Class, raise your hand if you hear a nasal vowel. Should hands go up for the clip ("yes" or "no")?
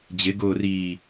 no